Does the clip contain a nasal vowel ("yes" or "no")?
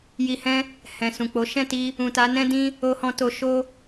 yes